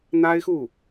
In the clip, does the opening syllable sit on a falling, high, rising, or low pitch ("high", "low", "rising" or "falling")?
high